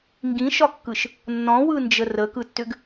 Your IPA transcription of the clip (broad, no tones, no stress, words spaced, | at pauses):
ŋɡĩʃɒkːɯʃ | nːɔ̃wɯnd͡ʒə rəkɯtːʏɡ